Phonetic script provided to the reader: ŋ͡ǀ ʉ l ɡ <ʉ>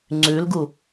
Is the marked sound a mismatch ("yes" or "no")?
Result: yes